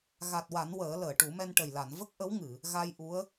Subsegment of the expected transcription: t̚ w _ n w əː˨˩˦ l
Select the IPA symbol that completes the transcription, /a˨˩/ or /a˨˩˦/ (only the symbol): a˨˩˦